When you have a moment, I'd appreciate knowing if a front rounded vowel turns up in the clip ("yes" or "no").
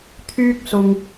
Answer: yes